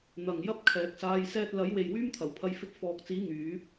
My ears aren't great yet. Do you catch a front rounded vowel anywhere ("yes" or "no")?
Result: yes